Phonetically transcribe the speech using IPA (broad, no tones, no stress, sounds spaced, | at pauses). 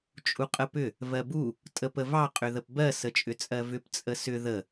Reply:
t͡ʃʼ u qʼ ə p ʏ | v ɜ b u | tʼ ə p ə v ɑ qʼ ʏ ð ə p b ɜ s ə t͡ʃʼ ʏ t͡sʼ ɜ v ʏ p t͡sʼ ə s ʏ ð ə